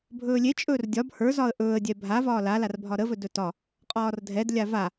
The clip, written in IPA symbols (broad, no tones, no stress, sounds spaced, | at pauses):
bʱ ɵː lʲ e t͡ʃʼ ɵː r dʲ ɒ b h ə˞ z ɒ ə̯ ʔ ɵː ə̯ dʲ ɛ bʱ a v ɒː l a l a r bʱ ɒ ɾ ə v ɵ d ɵ t ɒ | qʼ ɒː r dʱ ɛ d lʲ a v a